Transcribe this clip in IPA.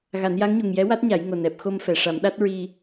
ɣa˨˩˦nja˧˥ŋɲu˨˩ŋ jɛ˧˥wa˦˥t̚ɲa˨˩˦j ŋo˨˩nɛ˨˩p̚xo˧m fɛ˨˩ʂa˨˩˦mɗa˦˥t̚ ɹi˧

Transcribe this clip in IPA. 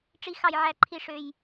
ʈ͡ʂi˦xɑ˦jʕæ˦ǃʰi˦ ʂø˦j

